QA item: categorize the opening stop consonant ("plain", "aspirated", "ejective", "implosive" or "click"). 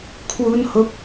aspirated